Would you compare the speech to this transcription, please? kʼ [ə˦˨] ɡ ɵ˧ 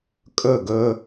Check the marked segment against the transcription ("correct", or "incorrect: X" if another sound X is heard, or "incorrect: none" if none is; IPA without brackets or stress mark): incorrect: ɵ˦˨